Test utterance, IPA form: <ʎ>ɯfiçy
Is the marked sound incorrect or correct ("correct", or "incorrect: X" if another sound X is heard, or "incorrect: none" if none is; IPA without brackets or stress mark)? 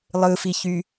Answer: incorrect: lˠ